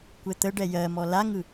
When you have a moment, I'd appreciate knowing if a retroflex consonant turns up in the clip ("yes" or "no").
yes